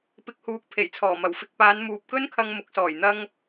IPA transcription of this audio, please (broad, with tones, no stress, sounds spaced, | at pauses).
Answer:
p ɪ˨ k̚ h uː˨ k̚ pʰ e˨˩ j t͡sʰ ɔː˨˩ m ɐ˨˩ w f ɪ˧ k̚ p aː˨˧ n m uː˨ p̚ k ɵ˥ n kʰ ɐ˧ ŋ m ʊ˨˥ k̚ s ɔː˨˩ j n̪ ɐ˧ ŋ